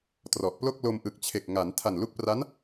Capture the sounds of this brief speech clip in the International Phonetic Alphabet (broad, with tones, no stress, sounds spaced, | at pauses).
t r ɔ˨˩ ʔ p l o˥˩ k̚ l o˧ m ʔ ɯ˨˩ k̚ t͡ɕʰ e˨˩ k̚ ŋ a˩˦ n tʰ a˨˩ n l u˦˥ k̚ p r a˦˥ n